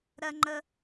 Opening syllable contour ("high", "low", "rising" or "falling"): high